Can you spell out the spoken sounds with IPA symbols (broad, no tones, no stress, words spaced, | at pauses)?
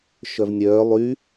ʃœvnʲœː lˠy